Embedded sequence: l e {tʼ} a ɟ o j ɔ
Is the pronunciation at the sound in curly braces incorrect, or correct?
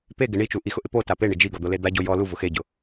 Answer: incorrect